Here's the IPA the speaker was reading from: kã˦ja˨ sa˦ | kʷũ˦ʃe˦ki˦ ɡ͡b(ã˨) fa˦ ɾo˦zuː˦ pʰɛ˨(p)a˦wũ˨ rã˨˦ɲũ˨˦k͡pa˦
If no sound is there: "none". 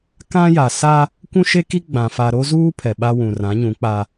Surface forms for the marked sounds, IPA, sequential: ã˨, ɓ

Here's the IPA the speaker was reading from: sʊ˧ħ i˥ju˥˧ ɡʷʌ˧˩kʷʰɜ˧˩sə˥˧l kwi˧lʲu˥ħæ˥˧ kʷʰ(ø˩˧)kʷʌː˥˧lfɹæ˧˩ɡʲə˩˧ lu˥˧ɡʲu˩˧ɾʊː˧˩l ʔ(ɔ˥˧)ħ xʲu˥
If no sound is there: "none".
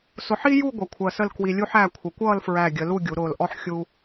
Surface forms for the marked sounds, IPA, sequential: ə˩˧, ɔ˥

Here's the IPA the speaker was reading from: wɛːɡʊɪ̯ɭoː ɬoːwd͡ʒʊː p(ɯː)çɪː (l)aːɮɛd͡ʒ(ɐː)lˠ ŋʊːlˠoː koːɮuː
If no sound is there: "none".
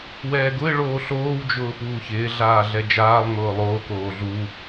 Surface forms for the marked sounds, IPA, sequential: uː, ɮ, aː

